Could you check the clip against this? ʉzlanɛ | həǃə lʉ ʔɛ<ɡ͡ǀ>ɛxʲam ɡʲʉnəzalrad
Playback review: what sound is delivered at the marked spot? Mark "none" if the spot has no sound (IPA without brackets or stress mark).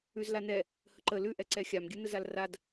ǀ